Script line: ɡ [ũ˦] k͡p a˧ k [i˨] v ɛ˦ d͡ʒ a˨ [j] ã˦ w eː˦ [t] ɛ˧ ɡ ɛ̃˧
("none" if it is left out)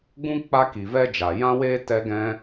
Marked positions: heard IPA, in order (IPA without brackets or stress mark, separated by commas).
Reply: ũ˦, i˨, j, t